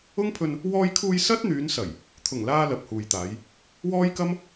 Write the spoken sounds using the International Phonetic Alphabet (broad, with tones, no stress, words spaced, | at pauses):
ʊ˥ŋpʰɵ˧n | wɔː˧jkʰuː˧j sɐ˥t̚n̪yː˨˧nsɐ˨˩j | t̪ʰʊ˨˩ŋlaː˧ lɐ˨p̚huː˨jt̪aː˨˧j | wɔː˥jkɐ˥m